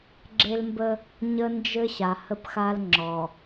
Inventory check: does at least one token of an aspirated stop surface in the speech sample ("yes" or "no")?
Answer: no